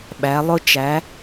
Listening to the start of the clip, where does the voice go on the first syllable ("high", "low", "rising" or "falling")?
rising